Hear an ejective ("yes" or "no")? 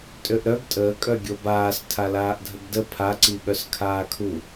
yes